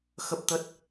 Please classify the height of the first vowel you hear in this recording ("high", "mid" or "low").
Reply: mid